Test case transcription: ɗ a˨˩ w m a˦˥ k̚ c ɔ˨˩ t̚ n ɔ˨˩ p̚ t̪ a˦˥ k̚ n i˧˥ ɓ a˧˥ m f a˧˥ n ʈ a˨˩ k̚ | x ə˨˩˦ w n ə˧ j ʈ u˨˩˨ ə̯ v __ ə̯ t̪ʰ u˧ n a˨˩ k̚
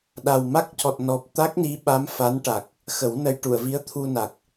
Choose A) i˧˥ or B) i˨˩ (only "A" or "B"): A